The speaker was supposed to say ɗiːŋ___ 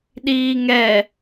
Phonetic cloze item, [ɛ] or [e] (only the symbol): ɛ